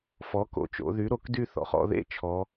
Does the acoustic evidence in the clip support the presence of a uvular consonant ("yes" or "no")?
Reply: yes